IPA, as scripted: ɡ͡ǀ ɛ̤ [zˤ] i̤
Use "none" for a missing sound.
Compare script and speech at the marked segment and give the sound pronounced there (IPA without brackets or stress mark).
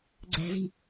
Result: z